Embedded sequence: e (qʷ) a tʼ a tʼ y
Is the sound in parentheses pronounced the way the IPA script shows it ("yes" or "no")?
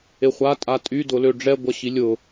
no